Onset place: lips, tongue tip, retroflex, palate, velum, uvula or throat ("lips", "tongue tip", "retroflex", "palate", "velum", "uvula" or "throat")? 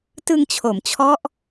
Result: tongue tip